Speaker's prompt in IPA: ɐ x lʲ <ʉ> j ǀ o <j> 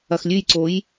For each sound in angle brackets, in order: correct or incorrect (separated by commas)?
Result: correct, correct